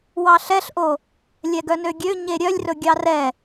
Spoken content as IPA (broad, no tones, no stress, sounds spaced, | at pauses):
w ɑ ɬ ɛ ɬ ʔ o | lʲ ɛ ɡ œ n ø ɡʲ ø ɲ e ɾʲ œ lʲ r ɵ ɡʲ ɑ r ɛ